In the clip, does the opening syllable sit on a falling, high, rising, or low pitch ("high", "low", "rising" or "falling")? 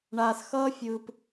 low